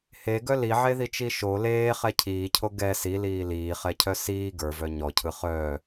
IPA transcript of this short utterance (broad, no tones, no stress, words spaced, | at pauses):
heɡœ liʕeðit͡ʃi ʃo leːχɛ cʰiːcʰo ɡɛ siliː liːχɛcʰœ siː ɡə˞vœ ɲɔcʰɯ χœː